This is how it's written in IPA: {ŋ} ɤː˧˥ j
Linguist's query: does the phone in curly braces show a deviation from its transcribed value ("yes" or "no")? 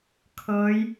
yes